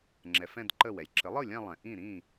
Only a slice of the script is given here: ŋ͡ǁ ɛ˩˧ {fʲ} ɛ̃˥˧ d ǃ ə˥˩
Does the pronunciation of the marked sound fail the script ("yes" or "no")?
yes